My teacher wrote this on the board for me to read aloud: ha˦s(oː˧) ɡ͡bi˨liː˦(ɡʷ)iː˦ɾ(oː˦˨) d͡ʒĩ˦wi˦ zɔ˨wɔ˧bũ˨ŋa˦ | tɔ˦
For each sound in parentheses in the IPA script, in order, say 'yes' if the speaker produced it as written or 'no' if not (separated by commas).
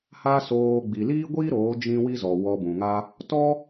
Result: yes, yes, no